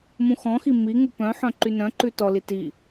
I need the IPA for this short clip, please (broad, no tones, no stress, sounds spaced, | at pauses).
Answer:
m ũ x ɔ̃ x i m i ŋ u p œ̃ ħ œ̃ ǃ y n œ̃ ǃ ʉ t ɔ l i t i